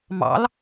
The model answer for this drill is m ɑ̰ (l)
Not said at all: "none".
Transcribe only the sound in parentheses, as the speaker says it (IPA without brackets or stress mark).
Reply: l